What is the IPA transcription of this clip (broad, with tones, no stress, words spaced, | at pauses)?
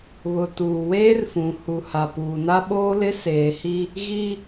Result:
βʊ˨ tuː˨weː˦rfũ˨ hu˨ha˨puː˨na˦ ɓoː˦lɪ˦ seː˨hi˦ | ɣi˦